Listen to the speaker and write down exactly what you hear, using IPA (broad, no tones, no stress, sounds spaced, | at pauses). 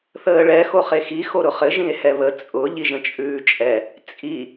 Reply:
θ əː ɭ ɛ x o χ e x i x o ɾ ʊ χ ɘ ʒ ĩ e̯ h ɛ β ə t͡sʼ ʊ ʎ i ʒ ə̃ t͡ʃʼ ʉː t͡ʃʼ ɛ | t͡sʼ i